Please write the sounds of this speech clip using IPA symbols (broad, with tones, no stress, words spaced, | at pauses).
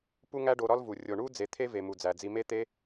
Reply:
pu˦ŋæ˦ɖo˧ ɾɒ˦lvu˨ rʲo˨ɳu˦ d͡ze˧t̪ʰe˦ve˨ mu˨d͡zæ˨d͡zi˧me˦ t̪e˦